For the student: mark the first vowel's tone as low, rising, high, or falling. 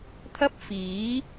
high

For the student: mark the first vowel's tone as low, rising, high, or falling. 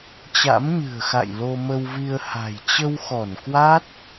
rising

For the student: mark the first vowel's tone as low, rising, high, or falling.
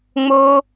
high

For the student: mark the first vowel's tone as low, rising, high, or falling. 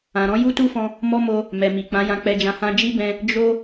low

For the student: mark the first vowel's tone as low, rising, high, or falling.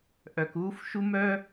low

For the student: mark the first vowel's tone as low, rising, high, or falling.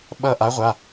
falling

